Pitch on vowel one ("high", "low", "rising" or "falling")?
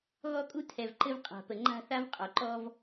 high